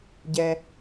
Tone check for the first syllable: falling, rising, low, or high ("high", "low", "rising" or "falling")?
low